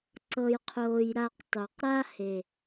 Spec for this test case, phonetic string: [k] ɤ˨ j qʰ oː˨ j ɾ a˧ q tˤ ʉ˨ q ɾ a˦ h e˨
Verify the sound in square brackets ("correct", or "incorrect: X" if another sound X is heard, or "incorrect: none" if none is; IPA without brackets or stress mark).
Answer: incorrect: ǀ